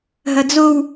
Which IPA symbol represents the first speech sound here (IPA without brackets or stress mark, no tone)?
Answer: ɦ